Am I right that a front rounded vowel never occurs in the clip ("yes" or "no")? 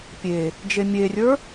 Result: yes